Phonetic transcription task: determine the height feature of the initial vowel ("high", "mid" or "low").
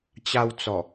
low